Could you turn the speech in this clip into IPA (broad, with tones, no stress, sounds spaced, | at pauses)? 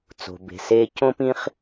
t͡s o̤˩ b e̤˩ s eː˥ c õ˥ p ĩ˥ χ